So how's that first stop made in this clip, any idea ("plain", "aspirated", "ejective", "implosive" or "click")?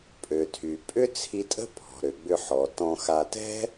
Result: ejective